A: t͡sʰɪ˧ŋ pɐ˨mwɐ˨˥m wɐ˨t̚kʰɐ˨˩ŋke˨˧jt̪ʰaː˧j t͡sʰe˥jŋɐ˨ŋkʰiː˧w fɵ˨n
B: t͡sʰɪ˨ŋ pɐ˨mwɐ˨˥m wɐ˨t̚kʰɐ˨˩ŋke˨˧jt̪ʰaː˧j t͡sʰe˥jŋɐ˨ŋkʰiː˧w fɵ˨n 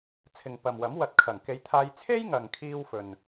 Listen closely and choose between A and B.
B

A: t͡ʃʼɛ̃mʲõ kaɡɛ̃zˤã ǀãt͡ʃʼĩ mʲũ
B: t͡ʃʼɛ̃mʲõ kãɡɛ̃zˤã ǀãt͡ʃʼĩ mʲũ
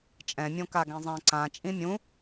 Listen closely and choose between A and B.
A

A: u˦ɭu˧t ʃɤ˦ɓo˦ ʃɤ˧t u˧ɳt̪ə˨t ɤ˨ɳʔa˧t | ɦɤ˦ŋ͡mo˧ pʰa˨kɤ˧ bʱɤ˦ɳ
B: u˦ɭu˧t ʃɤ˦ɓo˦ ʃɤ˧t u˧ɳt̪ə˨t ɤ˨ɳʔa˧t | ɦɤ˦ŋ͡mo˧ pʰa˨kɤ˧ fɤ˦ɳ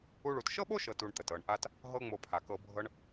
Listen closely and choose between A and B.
A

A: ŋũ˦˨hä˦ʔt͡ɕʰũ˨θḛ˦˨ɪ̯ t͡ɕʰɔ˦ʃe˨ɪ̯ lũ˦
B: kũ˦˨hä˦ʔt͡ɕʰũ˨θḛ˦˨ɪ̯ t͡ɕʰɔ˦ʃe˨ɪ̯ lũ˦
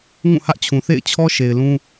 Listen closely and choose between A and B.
A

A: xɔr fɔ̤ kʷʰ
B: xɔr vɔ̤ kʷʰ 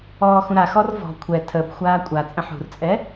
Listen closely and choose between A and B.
B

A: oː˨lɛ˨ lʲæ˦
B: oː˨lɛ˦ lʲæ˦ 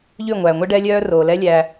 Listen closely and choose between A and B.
B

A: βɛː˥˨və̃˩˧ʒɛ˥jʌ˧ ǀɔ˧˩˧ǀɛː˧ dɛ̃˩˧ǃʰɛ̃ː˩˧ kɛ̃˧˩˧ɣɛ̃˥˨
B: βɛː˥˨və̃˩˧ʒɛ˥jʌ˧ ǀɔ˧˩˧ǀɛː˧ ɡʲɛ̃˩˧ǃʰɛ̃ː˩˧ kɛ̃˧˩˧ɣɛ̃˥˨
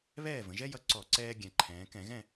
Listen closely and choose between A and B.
B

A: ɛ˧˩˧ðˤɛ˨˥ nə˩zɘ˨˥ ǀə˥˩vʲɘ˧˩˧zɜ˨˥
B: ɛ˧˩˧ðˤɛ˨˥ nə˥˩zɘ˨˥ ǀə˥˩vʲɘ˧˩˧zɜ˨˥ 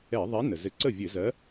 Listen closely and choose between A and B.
A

